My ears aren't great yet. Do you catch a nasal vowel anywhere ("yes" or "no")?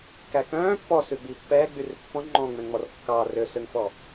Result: yes